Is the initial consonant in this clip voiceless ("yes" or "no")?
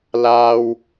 no